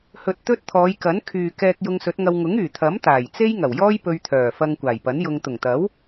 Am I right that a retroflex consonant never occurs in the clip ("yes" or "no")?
yes